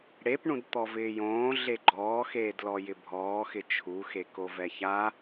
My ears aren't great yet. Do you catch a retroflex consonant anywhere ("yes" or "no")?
yes